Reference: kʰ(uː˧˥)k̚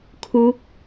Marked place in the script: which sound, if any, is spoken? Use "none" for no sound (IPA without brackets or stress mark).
uː˧˥